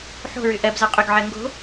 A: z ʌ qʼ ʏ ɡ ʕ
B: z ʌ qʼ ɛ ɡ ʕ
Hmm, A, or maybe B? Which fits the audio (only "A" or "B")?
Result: A